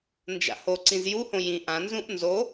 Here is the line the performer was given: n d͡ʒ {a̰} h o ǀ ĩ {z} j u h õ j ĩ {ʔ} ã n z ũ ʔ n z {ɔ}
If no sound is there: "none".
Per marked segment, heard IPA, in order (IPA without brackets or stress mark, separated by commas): a̰, z, ʔ, o